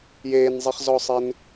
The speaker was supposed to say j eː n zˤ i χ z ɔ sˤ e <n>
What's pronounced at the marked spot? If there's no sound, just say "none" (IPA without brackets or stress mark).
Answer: n